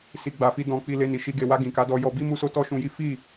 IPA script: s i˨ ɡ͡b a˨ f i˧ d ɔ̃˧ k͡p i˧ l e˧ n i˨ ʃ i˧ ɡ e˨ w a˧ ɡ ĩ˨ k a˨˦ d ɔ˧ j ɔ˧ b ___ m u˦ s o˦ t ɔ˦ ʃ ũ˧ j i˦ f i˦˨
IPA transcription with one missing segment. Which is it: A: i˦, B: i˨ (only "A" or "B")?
A